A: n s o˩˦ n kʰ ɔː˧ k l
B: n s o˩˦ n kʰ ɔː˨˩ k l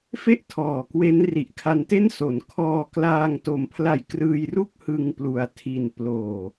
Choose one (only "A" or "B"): A